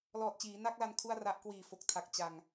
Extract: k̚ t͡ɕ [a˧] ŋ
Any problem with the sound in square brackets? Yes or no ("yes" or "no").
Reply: no